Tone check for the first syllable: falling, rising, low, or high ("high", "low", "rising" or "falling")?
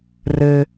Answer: high